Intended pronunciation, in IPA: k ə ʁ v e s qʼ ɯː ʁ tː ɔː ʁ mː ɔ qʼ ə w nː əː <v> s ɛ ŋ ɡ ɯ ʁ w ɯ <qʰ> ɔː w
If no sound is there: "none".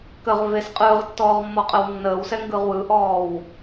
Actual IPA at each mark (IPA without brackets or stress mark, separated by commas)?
w, ʔ